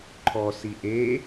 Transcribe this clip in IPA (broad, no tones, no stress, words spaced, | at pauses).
ǃʰɔ siʔe